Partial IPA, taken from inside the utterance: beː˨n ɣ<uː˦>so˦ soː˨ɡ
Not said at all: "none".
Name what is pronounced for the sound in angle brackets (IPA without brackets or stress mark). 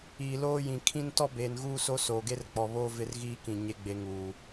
uː˦